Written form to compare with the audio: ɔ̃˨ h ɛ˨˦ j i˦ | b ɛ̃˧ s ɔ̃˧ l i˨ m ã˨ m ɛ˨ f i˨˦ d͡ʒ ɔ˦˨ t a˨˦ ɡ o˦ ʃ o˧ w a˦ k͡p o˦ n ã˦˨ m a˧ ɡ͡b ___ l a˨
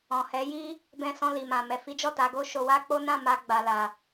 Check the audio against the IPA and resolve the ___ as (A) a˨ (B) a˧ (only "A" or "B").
A